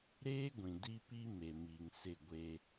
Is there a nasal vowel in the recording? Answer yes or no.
yes